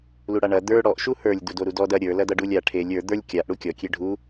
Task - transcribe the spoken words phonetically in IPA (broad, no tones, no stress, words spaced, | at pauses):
luɽaɳɐ d̪ə˞ ɽɔʔ ʃuhə˞lʲ dudoɾudɔd ɐ ɾʲə˞ lɐdʌɖulʲa ʈʰelʲ ə˞ d̪ə˞lʲ kʲaʔ ɽukʲɔ kʲeɖʱu